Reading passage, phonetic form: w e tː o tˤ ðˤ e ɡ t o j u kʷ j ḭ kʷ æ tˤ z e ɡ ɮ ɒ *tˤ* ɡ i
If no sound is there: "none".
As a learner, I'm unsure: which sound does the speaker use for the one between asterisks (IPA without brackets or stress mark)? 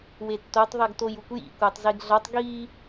tˤ